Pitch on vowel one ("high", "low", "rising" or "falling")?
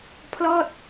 falling